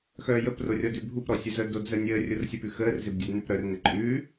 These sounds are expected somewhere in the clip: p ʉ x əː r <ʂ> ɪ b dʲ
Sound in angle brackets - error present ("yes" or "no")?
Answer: yes